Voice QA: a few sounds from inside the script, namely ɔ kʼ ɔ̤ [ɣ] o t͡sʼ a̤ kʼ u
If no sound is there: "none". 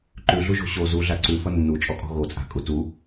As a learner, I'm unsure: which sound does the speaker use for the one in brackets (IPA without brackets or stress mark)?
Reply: ɣ